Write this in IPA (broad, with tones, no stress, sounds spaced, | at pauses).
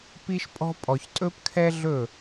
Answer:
p i˥ ʃ pʼ ɔ̤˥ pʼ ɔ˧ ç tʼ ɵ˥ p kʰ ɛ˥ ɮ ɵ˥˧